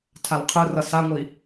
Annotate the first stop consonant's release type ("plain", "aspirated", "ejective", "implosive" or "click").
aspirated